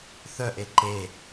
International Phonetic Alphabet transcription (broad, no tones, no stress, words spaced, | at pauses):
θœʔe ǃe